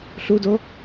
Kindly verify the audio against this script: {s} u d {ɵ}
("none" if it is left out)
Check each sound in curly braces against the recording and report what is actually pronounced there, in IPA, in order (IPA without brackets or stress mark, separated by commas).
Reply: ɬ, o